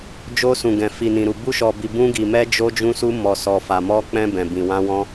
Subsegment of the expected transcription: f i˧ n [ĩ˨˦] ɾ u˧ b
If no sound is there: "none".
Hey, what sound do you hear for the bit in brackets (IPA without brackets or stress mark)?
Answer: ĩ˧